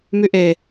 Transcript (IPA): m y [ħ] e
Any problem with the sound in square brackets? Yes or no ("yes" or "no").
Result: yes